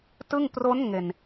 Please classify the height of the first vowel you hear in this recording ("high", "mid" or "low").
high